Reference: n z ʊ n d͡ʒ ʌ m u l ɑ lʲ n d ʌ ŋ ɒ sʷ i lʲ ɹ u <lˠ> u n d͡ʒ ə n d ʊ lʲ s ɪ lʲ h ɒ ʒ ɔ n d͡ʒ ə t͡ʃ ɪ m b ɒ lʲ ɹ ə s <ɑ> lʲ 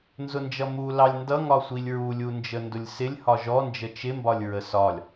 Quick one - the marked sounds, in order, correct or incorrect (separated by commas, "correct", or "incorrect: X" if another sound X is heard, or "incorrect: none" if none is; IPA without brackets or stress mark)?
incorrect: lʲ, incorrect: ɒ